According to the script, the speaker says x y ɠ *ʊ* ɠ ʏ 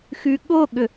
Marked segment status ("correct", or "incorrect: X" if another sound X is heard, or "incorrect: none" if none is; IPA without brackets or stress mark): correct